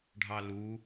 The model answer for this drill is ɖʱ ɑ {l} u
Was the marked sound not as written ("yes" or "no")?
no